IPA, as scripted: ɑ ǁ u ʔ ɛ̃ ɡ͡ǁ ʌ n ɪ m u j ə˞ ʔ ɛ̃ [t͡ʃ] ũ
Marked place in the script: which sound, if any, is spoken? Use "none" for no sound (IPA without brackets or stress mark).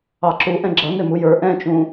t͡ʃ